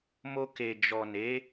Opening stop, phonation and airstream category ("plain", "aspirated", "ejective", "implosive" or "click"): plain